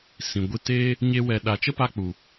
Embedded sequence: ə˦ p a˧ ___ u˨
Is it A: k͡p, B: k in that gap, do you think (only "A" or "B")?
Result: A